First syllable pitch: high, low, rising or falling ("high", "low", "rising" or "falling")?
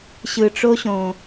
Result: low